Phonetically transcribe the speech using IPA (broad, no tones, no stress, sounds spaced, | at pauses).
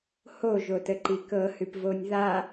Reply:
h o ʒ o t ə ǃ i k ɤ h ʉ p v o nʲ ð a